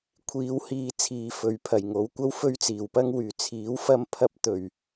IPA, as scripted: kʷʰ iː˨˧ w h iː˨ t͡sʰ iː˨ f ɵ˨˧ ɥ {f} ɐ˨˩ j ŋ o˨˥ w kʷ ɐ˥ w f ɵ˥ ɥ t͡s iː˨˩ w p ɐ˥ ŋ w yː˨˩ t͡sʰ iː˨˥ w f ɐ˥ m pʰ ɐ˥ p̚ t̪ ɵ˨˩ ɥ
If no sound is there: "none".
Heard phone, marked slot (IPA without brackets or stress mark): pʰ